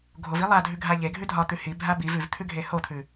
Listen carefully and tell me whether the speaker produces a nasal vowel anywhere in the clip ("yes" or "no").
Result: no